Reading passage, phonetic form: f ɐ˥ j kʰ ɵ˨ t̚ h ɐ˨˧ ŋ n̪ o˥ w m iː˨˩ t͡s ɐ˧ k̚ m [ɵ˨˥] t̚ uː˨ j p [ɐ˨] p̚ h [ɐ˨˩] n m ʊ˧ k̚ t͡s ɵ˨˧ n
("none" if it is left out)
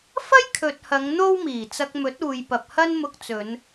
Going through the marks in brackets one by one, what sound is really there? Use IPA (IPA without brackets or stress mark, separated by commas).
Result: ɵ˨˥, ɐ˨, ɐ˥